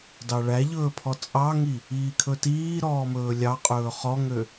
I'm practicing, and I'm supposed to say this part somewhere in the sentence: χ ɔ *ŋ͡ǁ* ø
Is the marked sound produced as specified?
no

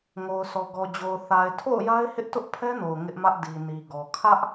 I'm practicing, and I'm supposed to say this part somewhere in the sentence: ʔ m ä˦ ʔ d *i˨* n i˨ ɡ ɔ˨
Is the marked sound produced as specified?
yes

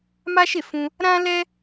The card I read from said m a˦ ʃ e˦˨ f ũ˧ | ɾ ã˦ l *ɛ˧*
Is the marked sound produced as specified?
no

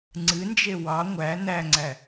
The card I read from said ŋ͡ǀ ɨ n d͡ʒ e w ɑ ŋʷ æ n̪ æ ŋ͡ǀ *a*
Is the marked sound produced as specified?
no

